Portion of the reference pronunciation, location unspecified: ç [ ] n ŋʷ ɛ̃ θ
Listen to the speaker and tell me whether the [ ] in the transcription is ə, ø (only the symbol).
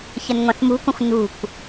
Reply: ə